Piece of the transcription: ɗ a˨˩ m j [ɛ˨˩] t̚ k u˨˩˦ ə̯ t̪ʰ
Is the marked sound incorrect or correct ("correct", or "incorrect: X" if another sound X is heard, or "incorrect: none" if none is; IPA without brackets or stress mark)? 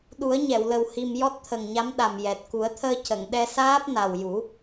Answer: correct